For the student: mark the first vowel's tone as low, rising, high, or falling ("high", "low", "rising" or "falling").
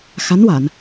rising